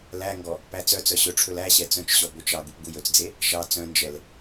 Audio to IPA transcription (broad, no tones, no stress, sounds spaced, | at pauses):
l æ ŋ ɡ ɔ | p æ t͡s œ t͡s œ ɕ ɵ ʈ͡ʂʰ ɵ l æ ɕ ɛ t͡s œ̃ t͡ʃ ɕ ɔ b ɵ t͡ʃ ɑ ɡ u p ɡ u j ɵ t͡s d͡z e | ʃ ɑ t͡s œ̃ n d͡ʒ ɛ l